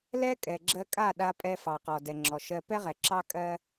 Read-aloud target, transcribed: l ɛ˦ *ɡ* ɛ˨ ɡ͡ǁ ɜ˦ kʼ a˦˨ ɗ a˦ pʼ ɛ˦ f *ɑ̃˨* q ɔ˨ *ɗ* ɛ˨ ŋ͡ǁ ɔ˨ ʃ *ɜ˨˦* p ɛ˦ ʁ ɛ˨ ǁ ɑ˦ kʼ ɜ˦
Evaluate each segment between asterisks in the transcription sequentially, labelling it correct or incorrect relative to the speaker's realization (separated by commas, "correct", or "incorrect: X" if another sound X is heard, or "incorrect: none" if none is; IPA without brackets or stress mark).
incorrect: kʼ, incorrect: ɑ˨, incorrect: d, incorrect: ɜ˦